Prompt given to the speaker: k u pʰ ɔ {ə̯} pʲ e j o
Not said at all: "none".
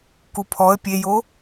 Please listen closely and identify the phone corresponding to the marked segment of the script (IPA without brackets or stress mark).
ə̯